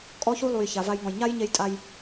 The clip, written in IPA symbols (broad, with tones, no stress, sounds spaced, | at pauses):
kʼ ɔ˥ ç u˥ lˠ u˩ j ç a˩ v a˧ j ŋ ɔ̃˩ j ɲ a˥ j ɲ e˧ j tʼ a˧ j